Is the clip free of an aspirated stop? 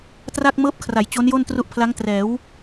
no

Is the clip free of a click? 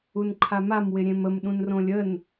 no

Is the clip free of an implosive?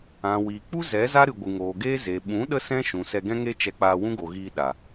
no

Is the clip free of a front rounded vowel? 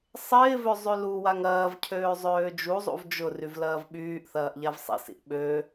no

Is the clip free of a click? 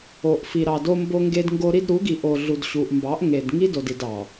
yes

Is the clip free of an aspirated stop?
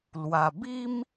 yes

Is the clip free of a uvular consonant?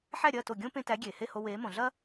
yes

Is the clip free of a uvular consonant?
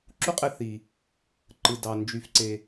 no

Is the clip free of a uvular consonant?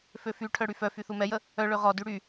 no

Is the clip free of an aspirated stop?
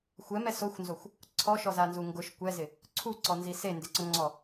no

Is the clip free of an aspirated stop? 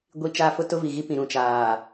yes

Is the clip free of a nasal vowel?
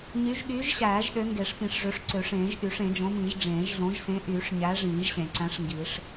no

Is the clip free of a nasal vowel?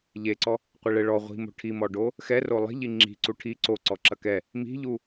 yes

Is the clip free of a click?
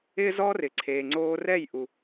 no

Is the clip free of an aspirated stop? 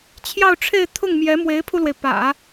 no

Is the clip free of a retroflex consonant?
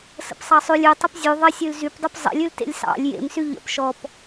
yes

